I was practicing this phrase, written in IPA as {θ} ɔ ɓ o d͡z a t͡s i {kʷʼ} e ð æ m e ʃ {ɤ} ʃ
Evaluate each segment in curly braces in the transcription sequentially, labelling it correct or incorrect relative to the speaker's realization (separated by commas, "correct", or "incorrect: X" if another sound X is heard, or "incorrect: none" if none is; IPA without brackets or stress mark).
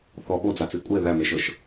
correct, correct, correct